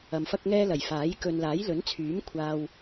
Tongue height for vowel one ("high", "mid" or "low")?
low